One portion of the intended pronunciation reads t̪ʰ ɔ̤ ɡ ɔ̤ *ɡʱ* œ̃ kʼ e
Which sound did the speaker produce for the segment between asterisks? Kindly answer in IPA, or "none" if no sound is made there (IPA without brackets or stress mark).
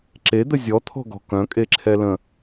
k